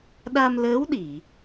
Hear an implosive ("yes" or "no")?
yes